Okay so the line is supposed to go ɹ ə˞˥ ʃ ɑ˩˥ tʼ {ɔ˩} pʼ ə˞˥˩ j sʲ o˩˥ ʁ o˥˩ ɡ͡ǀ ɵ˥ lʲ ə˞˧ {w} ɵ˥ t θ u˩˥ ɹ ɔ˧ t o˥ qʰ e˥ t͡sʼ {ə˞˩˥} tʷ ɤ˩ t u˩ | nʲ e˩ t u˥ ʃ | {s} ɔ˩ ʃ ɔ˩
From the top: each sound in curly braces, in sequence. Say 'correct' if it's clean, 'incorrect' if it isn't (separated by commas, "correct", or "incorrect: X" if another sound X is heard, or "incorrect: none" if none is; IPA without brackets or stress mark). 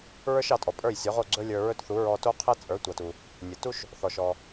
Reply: correct, incorrect: ɹ, correct, incorrect: θ